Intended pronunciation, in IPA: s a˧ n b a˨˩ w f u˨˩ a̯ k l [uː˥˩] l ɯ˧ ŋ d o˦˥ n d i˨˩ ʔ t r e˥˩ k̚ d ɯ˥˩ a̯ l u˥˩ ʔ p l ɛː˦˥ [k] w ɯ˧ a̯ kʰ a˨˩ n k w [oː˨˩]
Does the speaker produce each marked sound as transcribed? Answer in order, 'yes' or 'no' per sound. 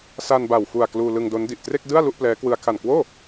no, yes, no

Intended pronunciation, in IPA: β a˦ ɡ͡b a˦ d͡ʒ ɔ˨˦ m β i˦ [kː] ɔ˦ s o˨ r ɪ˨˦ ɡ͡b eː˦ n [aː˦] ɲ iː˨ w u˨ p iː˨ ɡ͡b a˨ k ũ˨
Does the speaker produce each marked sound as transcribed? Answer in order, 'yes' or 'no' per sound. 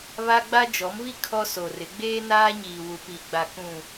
no, yes

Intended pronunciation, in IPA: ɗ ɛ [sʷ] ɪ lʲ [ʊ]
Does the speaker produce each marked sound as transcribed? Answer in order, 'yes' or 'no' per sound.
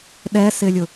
no, yes

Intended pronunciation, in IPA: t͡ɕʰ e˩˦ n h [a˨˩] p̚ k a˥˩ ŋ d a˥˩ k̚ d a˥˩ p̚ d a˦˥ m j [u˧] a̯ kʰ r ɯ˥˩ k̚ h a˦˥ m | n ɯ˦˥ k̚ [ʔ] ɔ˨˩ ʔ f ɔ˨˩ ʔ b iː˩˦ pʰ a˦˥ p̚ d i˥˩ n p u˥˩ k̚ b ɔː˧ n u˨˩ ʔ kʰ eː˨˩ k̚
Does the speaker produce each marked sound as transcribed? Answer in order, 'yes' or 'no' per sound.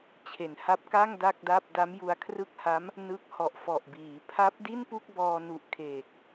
no, yes, no

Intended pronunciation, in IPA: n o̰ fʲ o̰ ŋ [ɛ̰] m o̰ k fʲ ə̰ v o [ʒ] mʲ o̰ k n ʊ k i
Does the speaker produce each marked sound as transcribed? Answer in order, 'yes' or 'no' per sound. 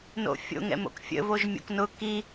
yes, yes

